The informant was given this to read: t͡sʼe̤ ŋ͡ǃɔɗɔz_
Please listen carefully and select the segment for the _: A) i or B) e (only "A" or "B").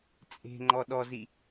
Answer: A